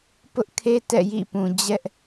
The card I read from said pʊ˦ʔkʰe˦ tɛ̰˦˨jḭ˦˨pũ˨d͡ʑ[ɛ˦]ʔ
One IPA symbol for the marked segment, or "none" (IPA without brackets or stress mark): ɛ˦